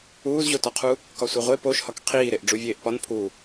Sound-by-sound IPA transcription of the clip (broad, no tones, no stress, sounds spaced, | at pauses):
uː z ʑ o t ɒ qʰ u | k ɒ sʷ e ʁʷ e p o ʃ h ɒ k qʰ iː ɾ e ʔ ɖ͡ʐ u vʲ eː ʔ p ɒ n pʰ u